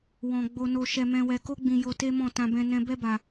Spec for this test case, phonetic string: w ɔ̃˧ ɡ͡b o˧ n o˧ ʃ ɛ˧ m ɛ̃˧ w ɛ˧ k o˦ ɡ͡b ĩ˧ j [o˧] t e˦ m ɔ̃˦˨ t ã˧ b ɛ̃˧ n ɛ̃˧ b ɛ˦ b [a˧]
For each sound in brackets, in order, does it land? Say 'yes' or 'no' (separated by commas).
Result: yes, yes